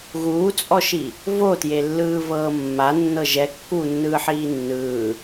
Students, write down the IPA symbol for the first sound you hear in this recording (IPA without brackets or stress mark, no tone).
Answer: ɣ